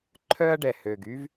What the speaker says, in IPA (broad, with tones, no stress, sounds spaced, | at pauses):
ǃʰ œ˦ ɐ̯ ɖ ɛ˨ h ø˨ ɡ y˦ v